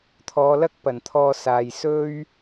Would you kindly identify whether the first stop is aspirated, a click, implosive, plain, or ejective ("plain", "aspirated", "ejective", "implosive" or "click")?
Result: aspirated